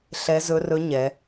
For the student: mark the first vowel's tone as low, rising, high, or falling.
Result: rising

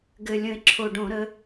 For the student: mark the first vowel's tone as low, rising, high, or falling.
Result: low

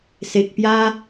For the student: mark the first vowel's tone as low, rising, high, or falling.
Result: low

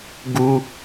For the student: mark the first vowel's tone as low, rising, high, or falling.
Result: high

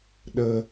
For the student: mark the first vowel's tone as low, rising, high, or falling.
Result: high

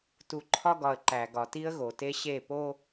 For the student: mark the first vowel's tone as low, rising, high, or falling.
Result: low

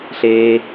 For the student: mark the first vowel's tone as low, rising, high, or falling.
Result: low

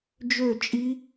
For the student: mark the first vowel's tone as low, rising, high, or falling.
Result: falling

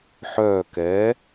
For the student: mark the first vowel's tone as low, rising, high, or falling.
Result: falling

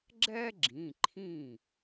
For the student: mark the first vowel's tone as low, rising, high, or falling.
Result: high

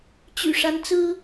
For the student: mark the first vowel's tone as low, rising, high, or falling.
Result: low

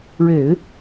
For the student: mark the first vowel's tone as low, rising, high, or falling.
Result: low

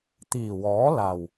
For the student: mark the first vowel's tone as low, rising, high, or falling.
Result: low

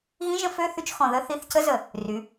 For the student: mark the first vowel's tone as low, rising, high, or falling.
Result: rising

